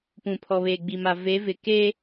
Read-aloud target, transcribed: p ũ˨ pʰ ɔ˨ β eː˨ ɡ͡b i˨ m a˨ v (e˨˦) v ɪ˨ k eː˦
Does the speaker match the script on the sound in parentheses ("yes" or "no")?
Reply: yes